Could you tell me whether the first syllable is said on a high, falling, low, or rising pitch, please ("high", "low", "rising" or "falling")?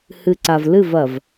low